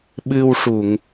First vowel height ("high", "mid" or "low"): high